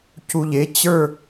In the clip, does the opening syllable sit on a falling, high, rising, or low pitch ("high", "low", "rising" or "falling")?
low